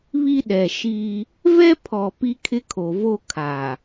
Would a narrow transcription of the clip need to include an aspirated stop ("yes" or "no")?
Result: yes